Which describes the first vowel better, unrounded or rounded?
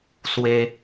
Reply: unrounded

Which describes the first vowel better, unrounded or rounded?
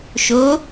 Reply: rounded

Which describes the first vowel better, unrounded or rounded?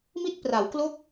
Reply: unrounded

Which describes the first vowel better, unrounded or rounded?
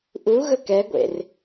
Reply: rounded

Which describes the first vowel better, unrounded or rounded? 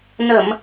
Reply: unrounded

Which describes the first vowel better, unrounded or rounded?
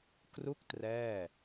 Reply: rounded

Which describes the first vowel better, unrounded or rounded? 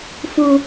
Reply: rounded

